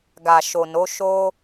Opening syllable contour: low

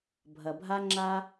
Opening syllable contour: low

